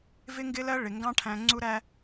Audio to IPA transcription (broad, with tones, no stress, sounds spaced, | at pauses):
v ɪ˦ ŋ ɡ ɪ˦ l ɜ˦ ɭ ɪ˨ ŋ ɡ ɑ̃˦ ʈʰ æ̃˧ ŋ͡ǀ u˧ ɾ æ˧